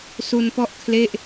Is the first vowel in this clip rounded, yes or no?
yes